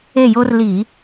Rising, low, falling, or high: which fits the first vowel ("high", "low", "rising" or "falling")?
falling